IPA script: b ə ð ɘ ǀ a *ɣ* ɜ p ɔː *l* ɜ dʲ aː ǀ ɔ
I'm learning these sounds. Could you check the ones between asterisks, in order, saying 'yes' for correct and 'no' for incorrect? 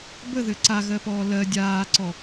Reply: yes, yes

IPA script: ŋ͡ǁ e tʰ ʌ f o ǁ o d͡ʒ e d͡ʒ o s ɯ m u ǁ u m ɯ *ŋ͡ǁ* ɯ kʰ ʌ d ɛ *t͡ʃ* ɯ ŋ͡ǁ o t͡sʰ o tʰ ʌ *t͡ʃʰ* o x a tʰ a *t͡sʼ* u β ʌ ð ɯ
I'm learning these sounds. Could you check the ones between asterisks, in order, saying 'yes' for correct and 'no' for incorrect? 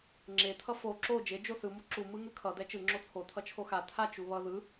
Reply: no, yes, yes, no

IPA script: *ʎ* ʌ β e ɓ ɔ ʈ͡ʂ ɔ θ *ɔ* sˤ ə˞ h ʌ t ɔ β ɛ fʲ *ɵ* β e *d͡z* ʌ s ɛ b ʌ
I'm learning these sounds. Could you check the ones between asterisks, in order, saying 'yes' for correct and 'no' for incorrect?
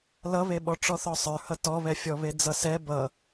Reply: no, yes, no, yes

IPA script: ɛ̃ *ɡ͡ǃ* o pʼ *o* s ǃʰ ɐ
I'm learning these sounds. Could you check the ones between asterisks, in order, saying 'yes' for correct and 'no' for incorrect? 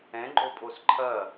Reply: yes, yes

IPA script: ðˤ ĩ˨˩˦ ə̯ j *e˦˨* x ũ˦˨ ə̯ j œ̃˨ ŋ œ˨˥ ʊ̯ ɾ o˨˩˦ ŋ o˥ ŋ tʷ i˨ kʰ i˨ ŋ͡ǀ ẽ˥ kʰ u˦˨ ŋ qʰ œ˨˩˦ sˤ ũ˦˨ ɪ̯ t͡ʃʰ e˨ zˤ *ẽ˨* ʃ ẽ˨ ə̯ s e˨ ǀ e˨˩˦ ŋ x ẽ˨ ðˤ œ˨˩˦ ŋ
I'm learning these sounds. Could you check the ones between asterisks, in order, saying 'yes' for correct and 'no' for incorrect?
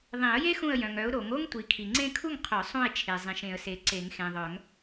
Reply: no, no

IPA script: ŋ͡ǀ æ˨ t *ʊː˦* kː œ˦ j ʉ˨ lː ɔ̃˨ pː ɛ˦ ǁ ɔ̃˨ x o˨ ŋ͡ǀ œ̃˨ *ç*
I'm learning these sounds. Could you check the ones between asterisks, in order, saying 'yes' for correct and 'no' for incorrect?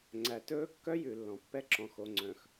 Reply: no, no

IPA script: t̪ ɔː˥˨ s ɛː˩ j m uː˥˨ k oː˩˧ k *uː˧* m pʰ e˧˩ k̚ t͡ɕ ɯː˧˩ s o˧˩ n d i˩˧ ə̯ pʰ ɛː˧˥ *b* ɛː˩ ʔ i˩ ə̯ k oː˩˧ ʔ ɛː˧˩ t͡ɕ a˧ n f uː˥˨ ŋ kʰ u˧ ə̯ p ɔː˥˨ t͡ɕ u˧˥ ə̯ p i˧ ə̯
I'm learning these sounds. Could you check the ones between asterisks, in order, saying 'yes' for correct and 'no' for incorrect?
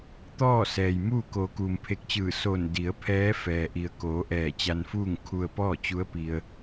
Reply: no, no

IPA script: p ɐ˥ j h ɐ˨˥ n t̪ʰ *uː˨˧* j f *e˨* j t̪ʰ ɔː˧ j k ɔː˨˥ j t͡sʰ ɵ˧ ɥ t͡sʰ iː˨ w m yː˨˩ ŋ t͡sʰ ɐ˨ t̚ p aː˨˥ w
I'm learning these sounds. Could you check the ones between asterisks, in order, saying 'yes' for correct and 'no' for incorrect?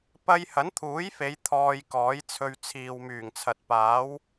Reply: no, no

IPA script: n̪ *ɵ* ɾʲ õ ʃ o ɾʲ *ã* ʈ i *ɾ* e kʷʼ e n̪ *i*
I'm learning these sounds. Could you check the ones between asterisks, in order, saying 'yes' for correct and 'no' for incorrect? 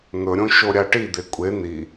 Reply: yes, no, no, yes

